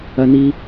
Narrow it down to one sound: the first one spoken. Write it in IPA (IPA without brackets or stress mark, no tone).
ɐ